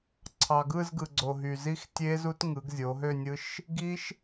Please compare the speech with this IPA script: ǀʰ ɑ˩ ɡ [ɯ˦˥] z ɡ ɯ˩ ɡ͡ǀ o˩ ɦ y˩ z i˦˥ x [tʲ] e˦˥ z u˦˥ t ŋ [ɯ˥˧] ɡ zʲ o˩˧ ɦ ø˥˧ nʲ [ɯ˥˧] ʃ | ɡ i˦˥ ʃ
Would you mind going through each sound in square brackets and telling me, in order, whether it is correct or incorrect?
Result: incorrect: ɯ˥˧, correct, incorrect: ɯ˩˧, incorrect: ɯ˦˥

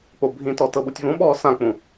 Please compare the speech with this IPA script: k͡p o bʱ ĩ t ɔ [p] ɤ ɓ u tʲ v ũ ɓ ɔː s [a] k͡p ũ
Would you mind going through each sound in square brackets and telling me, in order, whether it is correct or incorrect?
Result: incorrect: t, incorrect: ã

